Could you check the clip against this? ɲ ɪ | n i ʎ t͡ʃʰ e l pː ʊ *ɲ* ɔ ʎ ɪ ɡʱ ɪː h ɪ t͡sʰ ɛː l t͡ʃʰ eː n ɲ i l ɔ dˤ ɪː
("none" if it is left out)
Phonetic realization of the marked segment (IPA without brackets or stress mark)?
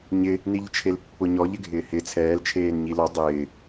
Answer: ɲ